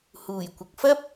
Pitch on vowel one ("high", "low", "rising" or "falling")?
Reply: low